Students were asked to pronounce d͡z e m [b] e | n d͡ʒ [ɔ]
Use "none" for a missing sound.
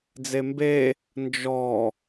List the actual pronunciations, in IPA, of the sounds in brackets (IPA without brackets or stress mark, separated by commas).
b, ɔ